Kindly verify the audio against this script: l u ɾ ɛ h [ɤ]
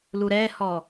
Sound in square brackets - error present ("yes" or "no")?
yes